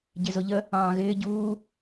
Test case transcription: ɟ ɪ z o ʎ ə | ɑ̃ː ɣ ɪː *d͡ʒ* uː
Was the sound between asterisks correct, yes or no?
no